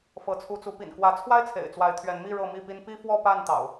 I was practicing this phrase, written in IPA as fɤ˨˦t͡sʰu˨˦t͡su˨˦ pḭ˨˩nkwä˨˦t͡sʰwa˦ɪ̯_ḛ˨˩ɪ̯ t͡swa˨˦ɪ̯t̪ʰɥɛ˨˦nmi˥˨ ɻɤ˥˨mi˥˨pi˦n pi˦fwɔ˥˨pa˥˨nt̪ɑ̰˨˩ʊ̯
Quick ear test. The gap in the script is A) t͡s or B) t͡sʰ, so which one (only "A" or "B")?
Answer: B